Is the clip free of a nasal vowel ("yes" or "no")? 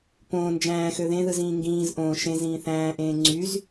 no